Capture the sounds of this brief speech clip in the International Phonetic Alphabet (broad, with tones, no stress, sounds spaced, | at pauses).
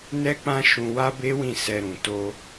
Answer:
n ɛ˦ k͡p ã˦ ʃ ũ˧ w a˦ b e˦ w ĩ˦˨ s ɛ˧ ɾ ũ˨ t o˧